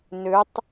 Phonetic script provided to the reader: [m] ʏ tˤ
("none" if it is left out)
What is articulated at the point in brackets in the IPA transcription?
n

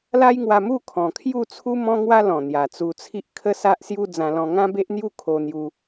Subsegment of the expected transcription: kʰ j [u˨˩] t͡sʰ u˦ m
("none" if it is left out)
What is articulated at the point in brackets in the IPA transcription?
u˥˧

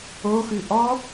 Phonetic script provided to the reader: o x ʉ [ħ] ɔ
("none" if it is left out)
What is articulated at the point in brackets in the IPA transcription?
ʔ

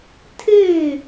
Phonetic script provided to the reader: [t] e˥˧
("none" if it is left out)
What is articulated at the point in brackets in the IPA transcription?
tʰ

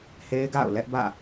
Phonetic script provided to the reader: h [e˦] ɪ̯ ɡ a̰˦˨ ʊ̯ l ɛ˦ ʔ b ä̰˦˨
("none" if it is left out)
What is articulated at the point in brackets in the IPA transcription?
e˦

